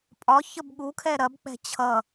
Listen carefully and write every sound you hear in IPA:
pʼ ɒ ç ə b ɠ u kʰ ɛ ɾ ɐ b k͡p ɛ̤ t͡ɕʰ ʌ

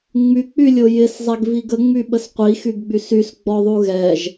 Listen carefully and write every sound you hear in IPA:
ŋ͡m y k͡p y lʲ o j ɪ s zˤ ɛ ɡ v i ɡ ə ŋ͡m y ɓ ə s qʷ i x y ɡ ɡ͡b y s y s ɡ͡b ɔ ðˤ u ɣ ɛ ʒ

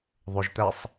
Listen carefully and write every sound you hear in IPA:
ðˤ ɵ ʒ t̪ æ sˤ

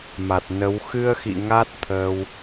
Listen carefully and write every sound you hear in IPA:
m a˨˩ t̚ n ə˨˦ w x ɨ˧ ə̯ x ḭ˧˨ ŋ a˦˥ t̚ t̪ʰ ə˧ w

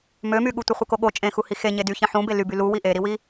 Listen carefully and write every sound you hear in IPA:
m ø m y ɠ u tʷ ɯ χʷ ɯ k o ɠ o t͡ʃʼ ẽ x u h i x e ɲ e d y ç ẽ ħ ũ b e l y b y l u w i ʔ e ɾ i w i

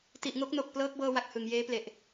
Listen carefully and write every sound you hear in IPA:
t i˨˩ ʔ ŋ o˦˥ k̚ n o˨˩ k̚ p l ɤː˦˥ k̚ b ɤː˧ w a˨˩ k̚ h ɯ˨˩ ŋ j eː˦˥ p l e˨˩ ʔ

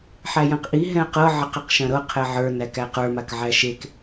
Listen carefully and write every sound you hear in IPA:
ħ æ j ɐ̃ q ʔ i ɦ ɛ̃ ɐ̯ q ɤ ʕ ɐ q e q ʃ ɐ̃ ɾ ɤ qʰ ɛ ʕ ə˞ n æ k æ q ə˞ m a k ʕ æ ʃ e k

